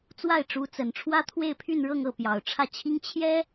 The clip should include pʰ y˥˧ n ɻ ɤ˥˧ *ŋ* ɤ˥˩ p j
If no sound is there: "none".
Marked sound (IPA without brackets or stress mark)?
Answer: ŋ